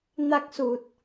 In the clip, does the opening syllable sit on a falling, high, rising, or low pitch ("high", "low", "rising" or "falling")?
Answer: high